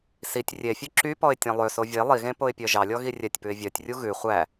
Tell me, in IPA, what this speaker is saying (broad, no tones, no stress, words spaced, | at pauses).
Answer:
sitʲ rʲefʲø ǁypɔɪ̯ tʲɑ̃lˠøso vʲe lˠiɣẽ poɪ̯pʲœʒɑlʲɔ ɣirʲɛtʲpʉɪ̯ vʲœtʲrʲu ɣʉ χʷæ